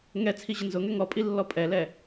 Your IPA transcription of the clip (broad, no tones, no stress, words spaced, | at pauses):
ŋɛt͡sʰi ʑənzʊŋɛ ŋɔpʼi lːɔpʼɛlɛ